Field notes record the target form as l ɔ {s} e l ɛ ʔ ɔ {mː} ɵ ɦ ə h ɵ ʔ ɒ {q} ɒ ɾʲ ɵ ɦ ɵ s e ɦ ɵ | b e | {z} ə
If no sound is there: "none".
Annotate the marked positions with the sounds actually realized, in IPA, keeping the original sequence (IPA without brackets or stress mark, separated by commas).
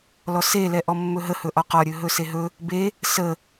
s, mː, q, s